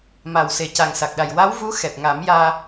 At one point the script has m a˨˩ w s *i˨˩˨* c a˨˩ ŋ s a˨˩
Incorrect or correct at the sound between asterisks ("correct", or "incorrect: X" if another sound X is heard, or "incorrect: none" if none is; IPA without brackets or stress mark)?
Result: incorrect: e˨˩˨